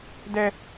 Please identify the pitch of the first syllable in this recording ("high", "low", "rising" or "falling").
high